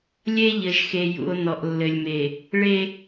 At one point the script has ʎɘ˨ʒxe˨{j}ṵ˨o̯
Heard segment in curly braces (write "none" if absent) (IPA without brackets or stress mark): j